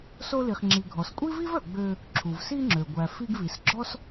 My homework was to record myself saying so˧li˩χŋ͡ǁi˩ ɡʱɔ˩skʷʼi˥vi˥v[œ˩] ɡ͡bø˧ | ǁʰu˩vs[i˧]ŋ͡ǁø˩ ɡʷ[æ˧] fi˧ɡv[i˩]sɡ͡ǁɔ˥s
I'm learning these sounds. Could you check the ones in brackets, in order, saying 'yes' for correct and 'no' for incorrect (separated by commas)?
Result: yes, yes, no, yes